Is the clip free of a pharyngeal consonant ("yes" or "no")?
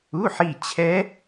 no